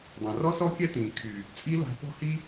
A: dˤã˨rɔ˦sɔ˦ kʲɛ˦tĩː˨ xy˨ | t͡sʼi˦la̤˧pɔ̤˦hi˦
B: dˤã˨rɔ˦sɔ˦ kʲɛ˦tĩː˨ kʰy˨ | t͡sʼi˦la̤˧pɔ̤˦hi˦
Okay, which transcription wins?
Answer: B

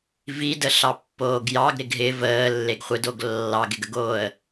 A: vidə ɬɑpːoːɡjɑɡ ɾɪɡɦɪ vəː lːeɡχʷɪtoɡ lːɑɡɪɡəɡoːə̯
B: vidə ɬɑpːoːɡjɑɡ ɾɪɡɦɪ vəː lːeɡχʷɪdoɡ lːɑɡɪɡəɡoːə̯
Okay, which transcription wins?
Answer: B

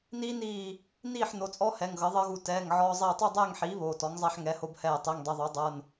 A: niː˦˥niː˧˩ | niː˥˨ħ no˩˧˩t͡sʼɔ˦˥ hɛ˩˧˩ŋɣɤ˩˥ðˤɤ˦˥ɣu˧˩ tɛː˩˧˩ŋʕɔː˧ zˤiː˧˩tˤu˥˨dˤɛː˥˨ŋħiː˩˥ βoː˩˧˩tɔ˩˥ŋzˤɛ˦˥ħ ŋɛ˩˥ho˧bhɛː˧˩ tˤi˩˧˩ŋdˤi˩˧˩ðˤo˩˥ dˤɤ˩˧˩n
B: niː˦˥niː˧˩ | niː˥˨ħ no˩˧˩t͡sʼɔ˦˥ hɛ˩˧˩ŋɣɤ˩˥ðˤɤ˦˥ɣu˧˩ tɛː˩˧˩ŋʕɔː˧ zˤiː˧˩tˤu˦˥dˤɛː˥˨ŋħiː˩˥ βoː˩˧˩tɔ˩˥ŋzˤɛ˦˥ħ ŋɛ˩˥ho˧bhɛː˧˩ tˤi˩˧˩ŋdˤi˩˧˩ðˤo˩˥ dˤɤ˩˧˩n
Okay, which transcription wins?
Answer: A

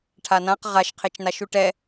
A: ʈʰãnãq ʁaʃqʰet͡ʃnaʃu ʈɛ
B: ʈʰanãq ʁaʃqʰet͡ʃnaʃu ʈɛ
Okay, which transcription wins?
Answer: B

